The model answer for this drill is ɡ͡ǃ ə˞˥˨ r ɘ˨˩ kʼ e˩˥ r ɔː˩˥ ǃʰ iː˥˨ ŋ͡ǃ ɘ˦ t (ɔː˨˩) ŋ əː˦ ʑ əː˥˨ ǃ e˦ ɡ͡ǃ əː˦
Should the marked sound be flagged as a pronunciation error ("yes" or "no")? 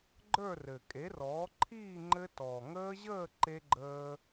no